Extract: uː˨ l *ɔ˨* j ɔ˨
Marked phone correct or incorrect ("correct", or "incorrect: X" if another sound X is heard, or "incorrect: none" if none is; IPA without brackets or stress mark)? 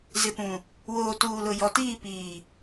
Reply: incorrect: ʊ˨